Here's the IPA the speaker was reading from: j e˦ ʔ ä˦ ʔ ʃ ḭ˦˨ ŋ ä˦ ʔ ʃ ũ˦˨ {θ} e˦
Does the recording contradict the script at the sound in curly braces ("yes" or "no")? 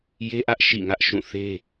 no